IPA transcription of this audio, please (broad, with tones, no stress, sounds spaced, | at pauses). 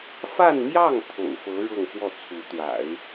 f a˥˧ n m j ɑ˥˩ ŋ t̪ʰ o̰˨˩ ʊ̯ f ɤ˧˥ ɻ ɤ˥˧ ŋ f w ɔ˥˩ t͡sʰ u˧˥ t̪ w a̰˨˩˦ ɪ̯